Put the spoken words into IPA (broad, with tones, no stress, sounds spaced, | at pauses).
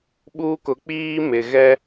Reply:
ɓ uː˦ k ʊ˨˦ k͡p iː˦ m ɪ˨ ɣ ɛ˦